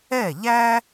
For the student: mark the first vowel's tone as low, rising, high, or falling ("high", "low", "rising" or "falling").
falling